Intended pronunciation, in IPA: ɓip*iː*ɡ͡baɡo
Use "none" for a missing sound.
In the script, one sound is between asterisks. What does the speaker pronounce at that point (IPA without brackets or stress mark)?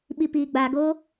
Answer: iː